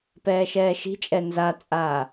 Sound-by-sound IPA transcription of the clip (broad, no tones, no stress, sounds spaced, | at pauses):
p ɛː ʃ ɛː ʃ i̤ t͡ʃʼ ɛ n z a t͡sʼ aː